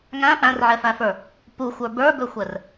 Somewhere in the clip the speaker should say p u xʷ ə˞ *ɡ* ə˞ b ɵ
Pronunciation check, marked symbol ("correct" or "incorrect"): incorrect